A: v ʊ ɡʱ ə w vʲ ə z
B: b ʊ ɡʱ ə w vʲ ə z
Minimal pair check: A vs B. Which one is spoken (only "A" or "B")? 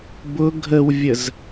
B